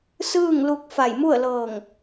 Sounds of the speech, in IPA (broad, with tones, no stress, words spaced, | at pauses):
sɯː˥˨ŋlu˧k̚ fa˧˩jmu˥˨ə̯lɤː˧˩ŋ